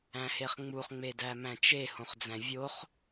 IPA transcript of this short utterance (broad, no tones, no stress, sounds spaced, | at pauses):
æ̃ h e χ ŋ͡m u χ ŋ͡m e d æ m æ̃ t͡ʃ e h õ χ d͡z æ̃ vʲ o χ